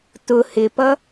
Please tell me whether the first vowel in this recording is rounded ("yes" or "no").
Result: yes